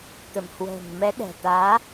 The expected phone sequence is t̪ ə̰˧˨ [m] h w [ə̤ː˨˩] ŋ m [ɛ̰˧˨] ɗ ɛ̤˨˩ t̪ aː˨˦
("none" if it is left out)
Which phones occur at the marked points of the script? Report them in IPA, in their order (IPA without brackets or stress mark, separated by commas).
m, ə̤ː˨˩, ɛ˨˦